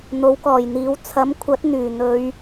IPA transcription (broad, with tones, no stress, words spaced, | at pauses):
n̪o˨˥wkɔː˨˩jn̪iː˨˥w t͡sʰɐ˨˥mkʷʰɐ˨˥t̚n̪yː˨˩ n̪ɵ˨˧ɥ